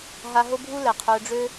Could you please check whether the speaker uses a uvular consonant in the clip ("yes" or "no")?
yes